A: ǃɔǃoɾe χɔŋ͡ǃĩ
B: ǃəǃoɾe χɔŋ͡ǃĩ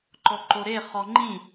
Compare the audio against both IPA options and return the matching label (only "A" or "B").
A